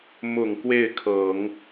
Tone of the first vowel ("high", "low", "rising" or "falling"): low